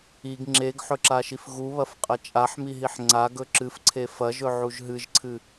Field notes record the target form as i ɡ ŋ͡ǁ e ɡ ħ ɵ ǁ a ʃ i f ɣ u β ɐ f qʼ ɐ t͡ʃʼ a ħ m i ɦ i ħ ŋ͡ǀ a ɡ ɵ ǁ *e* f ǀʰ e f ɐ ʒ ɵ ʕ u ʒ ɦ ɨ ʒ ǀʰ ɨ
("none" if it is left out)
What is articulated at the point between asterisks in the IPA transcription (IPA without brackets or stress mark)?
ɨ